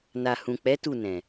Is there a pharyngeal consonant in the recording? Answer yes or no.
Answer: no